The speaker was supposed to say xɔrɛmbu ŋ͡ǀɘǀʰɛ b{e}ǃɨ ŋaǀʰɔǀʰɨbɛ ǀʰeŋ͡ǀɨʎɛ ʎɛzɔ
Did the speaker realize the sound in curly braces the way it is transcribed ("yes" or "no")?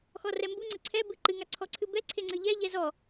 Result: no